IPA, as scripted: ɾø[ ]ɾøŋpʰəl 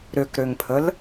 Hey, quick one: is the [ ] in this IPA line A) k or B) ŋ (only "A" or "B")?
A